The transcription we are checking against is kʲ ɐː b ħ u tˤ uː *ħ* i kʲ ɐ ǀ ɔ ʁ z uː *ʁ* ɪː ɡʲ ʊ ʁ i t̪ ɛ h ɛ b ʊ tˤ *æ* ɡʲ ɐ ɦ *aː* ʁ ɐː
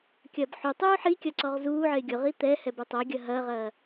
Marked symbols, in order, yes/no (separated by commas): yes, no, no, no